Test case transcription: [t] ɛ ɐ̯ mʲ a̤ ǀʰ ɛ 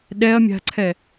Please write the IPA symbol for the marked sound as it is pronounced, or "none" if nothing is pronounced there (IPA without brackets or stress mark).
ɗ